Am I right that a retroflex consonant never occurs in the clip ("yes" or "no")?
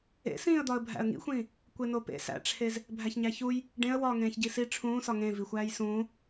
no